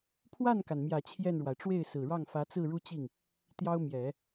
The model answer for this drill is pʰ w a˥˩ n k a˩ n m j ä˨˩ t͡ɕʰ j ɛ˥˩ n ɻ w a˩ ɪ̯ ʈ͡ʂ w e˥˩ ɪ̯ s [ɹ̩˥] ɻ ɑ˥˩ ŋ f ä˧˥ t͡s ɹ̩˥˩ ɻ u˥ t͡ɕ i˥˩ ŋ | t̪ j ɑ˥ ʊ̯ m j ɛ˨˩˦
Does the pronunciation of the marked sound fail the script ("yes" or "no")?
yes